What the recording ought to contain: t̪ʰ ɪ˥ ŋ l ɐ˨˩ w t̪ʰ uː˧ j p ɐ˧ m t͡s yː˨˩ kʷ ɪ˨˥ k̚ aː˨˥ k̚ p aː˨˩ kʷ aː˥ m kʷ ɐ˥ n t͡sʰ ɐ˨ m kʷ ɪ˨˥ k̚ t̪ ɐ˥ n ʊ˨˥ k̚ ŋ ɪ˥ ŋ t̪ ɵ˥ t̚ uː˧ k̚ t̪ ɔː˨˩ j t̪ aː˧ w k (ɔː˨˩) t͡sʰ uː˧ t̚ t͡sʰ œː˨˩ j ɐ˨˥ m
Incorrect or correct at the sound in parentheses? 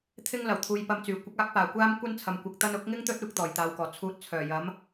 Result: correct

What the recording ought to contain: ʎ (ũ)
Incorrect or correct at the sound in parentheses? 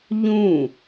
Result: correct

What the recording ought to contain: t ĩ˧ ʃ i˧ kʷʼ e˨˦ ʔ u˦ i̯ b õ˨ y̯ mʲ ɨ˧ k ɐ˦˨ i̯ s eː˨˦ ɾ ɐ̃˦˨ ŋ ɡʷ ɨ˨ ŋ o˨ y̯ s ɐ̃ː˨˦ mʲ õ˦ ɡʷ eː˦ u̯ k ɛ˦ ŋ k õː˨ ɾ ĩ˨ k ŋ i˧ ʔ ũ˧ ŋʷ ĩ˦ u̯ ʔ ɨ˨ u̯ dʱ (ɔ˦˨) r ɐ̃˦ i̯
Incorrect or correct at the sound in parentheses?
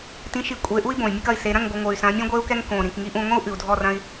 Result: correct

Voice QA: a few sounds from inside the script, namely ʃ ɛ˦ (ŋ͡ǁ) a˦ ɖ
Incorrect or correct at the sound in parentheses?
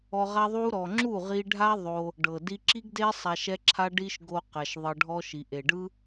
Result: incorrect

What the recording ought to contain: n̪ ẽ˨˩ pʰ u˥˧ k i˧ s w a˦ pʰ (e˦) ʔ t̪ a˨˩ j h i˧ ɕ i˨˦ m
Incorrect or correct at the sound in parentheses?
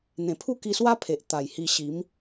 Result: incorrect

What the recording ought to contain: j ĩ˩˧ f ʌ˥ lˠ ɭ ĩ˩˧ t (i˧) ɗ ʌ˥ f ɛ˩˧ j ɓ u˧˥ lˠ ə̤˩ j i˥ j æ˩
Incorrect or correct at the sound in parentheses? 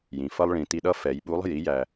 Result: correct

